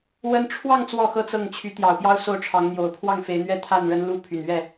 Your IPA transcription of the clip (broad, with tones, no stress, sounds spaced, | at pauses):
w ə˥ n ʈ͡ʂʰ w ɑ˥˧ ŋ t͡s w ɔ˥˩ x ɤ˥ t͡s ɤ˥˩ ŋ t͡ɕʰ y˧˥ t̪ j ɑ˨˩ ʊ̯ p j ɑ˥˧ ʊ̯ s o˥˩ ʊ̯ ʈ͡ʂʰ ɑ˧˥ ŋ n̪ j o˨˩ ʊ̯ pʰ w ɑ˥˩ ŋ f e˧˥ ɪ̯ n̪ ɥ ɛ˥ t̪ʰ a˥˩ n ɻ ə˥ n l u˥ pʰ y˨˩ n ɥ ɛ˥˩